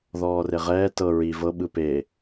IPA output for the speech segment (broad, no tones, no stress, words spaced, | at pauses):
ðɔːreʁɛː tɤ ɹi vɤ ɓɯpe